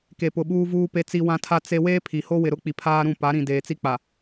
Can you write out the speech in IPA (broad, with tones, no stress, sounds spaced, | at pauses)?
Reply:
k e˨ p ʊ˨ ɓ uː˦ v uː˦ p e˦ t͡s i˦ w ã˦ tʰ a˦ t͡s e˦ w eː˦ pʰ i˨ h o˦ w ɪ˨ ɾ ʊ˦ k͡p i˨ pʰ aː˦ ɾ ũ˦˨ p a˨˦ ɾ ĩ˨ d eː˨ t͡s i˦ k͡p a˨